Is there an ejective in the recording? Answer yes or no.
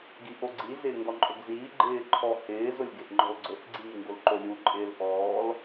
yes